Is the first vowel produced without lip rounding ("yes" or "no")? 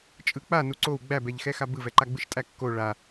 yes